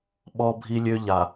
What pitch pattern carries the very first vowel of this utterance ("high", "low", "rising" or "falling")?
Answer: high